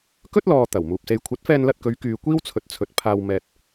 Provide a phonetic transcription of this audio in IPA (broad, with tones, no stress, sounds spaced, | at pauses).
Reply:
k ɵ˥ t̚ l ɔː˨ t̪ ɐ˨˩ w m uː˨ p̚ s e˧ j kʷʰ ɐ˨˥ t̚ f ɛː˧ n l ɐ˧ t̚ k ɵ˨˧ ɥ k yː˧ kʷ iː˥ w t͡sʰ ɵ˨˥ t̚ t͡sʰ ɵ˨ t̚ pʰ aː˧ w m ɛː˧ t̚